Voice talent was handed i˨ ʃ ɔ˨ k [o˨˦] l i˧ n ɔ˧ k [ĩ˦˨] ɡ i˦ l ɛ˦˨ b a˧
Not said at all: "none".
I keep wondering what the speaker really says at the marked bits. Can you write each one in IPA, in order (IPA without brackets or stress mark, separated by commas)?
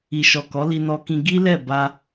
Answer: ɔ˨˦, ĩ˧